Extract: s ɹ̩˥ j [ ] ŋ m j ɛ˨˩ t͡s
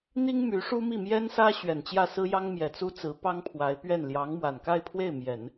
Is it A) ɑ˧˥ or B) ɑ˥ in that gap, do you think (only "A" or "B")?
B